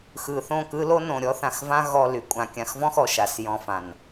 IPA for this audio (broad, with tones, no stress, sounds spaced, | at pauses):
x ɯ˨ θ õ˦˨ k ɯ˦ l o˦ n õ˨ ɾʲ ɔ˦ θ ã˨ x v ã˦ ɣ ɔ˨ l y˨ kʷʼ ã˨ kʲ ã˨ x v ɔ̃˦ x ɔ˨ ʃ a˨ s j ɔ̃˦ f ã˨ n